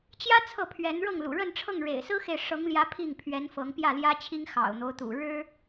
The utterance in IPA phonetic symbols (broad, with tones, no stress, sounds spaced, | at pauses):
t͡ɕ j ä˥ t͡sʰ ɤ˥˩ pʰ ɥ ɛ˧˥ n ɻ ɤ˥˩ ŋ l ṵ˨˩ ɻ ə˥˧ n ʈ͡ʂʰ ɤ˥˩ ŋ ɻ ḛ˨˩ ɪ̯ s ɹ̩˥ x e˨ ɪ̯ ʂ ɤ˧˥ ŋ l j ä˧˥ pʰ i˥˩ ŋ pʰ ɥ ɛ˧˥ n f ɤ˧˥ ŋ p j ä˥˩ l j ä˥ t͡ɕʰ i˥ ŋ x ɑ̰˨˩ ʊ̯ n̪ o˦ ʊ̯ t̪ ṵ˨˩ ɻ ɻ̩˥